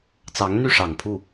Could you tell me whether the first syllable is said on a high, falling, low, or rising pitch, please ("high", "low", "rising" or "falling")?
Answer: rising